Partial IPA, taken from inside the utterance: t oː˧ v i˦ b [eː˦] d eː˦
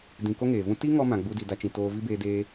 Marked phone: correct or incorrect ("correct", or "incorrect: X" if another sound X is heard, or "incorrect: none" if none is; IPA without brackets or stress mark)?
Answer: correct